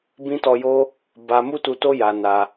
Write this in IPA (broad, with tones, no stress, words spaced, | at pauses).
bĩ˧tɔ˨ jo˧ | ba˧ mu˦tu˧to˦ ja˧na˧